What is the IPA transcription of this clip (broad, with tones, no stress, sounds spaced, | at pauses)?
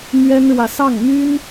m ɥ ɛ˥ n ɻ w ä˨ s ɑ˥˩ ŋ m y˥ n